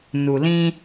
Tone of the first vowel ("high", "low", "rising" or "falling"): low